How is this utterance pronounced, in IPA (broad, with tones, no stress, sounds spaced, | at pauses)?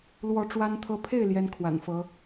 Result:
l w ɔ˧˥ ʈ͡ʂ w a˥ n t̪ʰ ɤ˥ pʰ e˥˩ ɪ̯ l j ɛ˥ n kʰ w a̰˨˩ n f ɤ˧˥